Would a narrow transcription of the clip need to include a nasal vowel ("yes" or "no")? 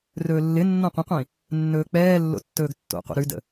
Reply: yes